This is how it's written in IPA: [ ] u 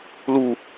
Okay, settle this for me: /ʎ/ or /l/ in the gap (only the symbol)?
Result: l